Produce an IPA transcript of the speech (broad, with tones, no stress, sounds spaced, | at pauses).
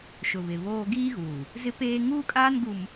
ʃ ʊ˨ β ɪ˨ β oː˦ ɡ iː˦ ɣ uː˨ | z ɪ˦ p eː˦ ŋ uː˦ kʼ aː˦ n ɡ u˨ m